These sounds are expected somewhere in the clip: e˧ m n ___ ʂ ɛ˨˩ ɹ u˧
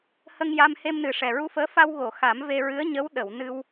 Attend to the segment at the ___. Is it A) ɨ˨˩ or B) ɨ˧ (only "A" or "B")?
A